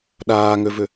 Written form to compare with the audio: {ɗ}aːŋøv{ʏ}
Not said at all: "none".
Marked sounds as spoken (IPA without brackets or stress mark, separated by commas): ɗ, ʏ